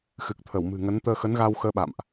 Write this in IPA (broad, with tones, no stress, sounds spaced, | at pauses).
x ɨ˨˩ k̚ t̪ʰ ə˧˩ w m ɨ̤˨˩ ŋ ə˨˦ n t̪ əː˧ x ə˨˦ n ɣ a˧ w x əː˧ ɓ a̰˧˨ m ʔ